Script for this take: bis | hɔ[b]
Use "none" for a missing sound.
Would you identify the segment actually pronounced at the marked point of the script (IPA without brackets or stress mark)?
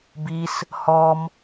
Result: m